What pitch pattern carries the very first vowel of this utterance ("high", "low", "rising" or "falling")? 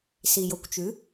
low